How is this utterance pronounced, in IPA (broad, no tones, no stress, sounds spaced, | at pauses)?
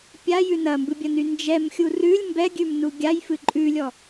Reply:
pʲ a j ʉ n ɐ m b ɨ bʲ ɐ n y n d͡ʒ ɛ m xʲ u r ʉ lʲ m b ɛ ɡʲ ʉ m n u ɡʲ a j f ɨ ǃʼ ʉ lʲ ɔ